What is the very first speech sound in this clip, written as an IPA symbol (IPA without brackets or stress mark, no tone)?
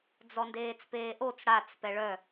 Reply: d͡z